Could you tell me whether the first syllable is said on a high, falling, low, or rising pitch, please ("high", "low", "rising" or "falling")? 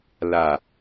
low